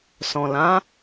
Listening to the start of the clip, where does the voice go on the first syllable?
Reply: low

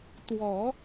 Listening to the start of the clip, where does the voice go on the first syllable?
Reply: low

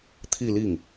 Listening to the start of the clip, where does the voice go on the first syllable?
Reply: falling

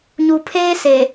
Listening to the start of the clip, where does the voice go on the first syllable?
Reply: low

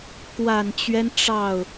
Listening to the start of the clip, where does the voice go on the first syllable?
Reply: low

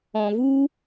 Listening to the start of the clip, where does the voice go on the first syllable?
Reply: low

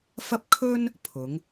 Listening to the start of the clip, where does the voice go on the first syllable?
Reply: high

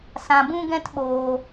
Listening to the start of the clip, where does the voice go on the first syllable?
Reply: low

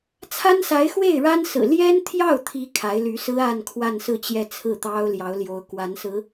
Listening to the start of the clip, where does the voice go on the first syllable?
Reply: high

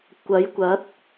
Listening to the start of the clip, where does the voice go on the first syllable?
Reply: rising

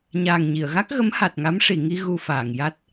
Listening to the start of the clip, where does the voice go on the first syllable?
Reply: low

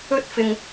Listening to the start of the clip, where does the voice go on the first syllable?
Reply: high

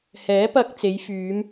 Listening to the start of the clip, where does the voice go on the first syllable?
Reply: rising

